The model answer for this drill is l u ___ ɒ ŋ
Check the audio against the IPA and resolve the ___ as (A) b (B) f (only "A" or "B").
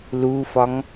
B